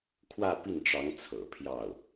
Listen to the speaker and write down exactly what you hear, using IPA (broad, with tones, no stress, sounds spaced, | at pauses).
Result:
kʰ w ä˥˧ p i˥˩ n ʈ͡ʂ ɑ˧˥ ŋ t͡sʰ ɤ̰˨˩ pʰ j ɑ˥˩ ʊ̯